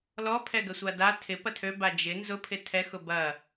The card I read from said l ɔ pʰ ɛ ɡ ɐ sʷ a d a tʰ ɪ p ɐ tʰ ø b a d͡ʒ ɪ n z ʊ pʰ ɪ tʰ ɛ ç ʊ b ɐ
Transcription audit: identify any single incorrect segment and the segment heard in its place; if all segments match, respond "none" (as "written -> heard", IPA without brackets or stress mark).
ç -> x